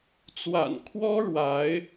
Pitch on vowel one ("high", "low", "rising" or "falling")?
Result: low